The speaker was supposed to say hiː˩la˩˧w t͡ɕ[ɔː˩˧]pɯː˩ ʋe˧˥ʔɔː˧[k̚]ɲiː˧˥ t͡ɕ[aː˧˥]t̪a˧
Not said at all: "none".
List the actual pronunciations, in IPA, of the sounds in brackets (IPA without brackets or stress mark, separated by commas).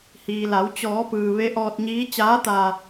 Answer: ɔː˩˧, t̚, aː˧˥